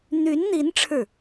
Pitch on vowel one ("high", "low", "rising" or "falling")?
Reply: rising